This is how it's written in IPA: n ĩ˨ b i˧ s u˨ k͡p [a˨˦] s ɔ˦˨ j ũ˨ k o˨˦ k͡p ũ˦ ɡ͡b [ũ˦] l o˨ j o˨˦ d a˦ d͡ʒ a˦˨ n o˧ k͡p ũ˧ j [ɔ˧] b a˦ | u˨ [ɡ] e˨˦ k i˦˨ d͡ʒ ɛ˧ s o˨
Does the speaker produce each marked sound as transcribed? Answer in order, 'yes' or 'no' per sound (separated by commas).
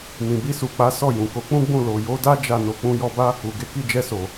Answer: yes, no, yes, yes